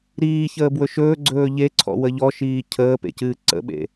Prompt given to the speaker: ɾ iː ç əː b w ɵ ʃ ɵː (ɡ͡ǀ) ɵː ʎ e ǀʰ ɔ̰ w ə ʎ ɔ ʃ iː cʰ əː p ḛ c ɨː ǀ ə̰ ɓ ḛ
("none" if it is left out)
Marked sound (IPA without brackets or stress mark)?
ɡ͡ǀ